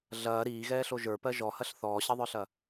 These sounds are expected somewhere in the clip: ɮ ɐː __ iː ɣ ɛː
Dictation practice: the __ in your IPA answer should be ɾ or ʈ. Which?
ɾ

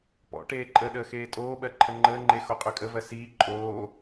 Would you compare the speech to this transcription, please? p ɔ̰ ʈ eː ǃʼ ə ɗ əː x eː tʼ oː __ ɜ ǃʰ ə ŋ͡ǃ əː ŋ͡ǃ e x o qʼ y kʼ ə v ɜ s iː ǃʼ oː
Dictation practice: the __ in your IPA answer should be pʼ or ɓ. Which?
ɓ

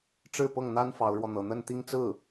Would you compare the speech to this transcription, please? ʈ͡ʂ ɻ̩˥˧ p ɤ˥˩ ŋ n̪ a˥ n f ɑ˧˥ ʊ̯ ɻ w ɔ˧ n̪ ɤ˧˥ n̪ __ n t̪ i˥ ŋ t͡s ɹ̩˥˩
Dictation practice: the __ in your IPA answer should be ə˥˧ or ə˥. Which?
ə˥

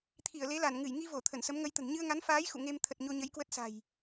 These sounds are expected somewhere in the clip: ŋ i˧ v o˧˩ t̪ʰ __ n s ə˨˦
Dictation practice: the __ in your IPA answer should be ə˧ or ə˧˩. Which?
ə˧˩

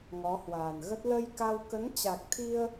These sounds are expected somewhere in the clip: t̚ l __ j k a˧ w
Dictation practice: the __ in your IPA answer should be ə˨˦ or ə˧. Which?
ə˧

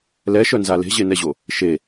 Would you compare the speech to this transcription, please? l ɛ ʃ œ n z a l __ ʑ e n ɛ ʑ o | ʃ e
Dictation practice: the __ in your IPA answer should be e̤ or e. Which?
e̤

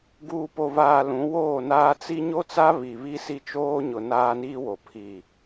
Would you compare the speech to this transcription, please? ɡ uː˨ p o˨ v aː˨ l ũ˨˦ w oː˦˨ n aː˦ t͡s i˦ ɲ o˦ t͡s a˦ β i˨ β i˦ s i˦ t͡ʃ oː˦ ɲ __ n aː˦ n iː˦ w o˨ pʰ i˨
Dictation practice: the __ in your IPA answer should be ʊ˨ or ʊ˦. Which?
ʊ˨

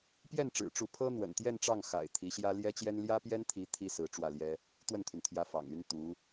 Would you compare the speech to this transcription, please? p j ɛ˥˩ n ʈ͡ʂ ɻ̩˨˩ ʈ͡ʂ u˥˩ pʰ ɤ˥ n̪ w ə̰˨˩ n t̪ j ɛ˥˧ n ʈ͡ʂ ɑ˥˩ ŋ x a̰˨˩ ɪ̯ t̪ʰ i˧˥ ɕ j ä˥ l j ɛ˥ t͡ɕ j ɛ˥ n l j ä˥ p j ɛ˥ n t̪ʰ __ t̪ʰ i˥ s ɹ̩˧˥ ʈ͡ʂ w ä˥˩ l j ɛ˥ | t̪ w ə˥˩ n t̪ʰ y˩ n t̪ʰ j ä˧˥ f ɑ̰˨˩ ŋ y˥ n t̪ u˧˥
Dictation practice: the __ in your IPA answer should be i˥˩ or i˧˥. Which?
i˧˥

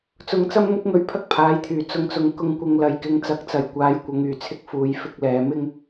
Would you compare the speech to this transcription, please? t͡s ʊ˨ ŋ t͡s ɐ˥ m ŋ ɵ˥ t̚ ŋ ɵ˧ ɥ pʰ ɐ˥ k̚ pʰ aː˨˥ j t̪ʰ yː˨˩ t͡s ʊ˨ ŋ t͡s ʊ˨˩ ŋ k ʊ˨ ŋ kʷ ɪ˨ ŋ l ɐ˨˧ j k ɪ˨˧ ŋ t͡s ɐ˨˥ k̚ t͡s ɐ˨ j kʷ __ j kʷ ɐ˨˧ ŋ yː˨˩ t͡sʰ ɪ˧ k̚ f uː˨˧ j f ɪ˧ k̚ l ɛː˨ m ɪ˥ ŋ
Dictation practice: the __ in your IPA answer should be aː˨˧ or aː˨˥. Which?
aː˨˧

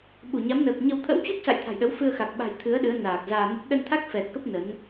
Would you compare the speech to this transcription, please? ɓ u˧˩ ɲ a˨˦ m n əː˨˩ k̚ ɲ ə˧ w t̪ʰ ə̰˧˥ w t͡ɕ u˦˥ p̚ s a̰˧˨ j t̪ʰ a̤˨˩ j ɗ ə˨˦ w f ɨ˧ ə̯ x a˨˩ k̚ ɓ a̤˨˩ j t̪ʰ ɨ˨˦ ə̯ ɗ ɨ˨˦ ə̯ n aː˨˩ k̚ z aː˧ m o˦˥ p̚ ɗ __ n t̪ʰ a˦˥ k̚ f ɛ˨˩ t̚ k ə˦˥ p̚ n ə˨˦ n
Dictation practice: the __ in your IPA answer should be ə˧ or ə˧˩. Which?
ə˧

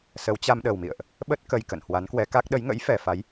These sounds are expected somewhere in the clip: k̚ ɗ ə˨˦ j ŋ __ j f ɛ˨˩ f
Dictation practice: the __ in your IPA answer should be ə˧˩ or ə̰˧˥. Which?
ə̰˧˥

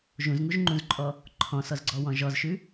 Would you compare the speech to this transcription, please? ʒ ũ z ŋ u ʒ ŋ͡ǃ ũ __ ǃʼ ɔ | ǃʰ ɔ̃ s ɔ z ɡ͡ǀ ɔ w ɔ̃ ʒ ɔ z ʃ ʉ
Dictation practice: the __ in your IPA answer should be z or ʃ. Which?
z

